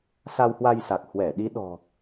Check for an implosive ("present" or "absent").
present